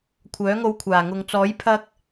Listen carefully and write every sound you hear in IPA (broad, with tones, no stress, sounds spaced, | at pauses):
kʷʰ œː˨˥ ŋ o˧ w kʷʰ aː˨˩ ŋ ʊ˨ ŋ t͡s ɔː˨˥ j pʰ ɐ˧ k̚